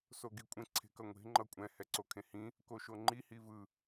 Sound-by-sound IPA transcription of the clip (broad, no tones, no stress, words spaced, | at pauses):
soɡikʷʼẽ ǀʰe̤kʌŋʷe̤ ŋ͡ǃʌkʷʼɛ̃ hɛǀokʰẽhĩ | koʃoŋ͡ǃi hivɯ